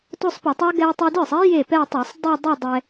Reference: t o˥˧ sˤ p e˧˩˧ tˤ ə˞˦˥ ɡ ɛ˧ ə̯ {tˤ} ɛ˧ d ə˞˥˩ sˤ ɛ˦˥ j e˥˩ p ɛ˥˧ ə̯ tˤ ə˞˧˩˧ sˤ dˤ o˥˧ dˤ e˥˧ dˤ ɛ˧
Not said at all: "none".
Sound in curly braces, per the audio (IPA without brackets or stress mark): tˤ